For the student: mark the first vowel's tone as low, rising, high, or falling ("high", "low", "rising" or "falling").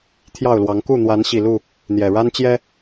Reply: falling